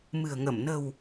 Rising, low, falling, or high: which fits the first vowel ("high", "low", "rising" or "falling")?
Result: low